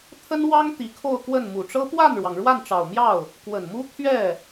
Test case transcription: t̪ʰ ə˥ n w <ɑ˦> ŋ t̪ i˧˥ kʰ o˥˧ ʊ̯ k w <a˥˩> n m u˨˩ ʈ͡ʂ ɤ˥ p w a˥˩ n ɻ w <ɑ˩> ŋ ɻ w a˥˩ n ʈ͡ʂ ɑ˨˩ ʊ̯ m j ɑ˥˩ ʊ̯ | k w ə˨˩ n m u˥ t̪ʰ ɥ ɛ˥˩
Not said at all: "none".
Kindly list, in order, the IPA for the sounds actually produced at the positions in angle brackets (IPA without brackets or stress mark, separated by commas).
ɑ˥, ə˥˩, ɑ˩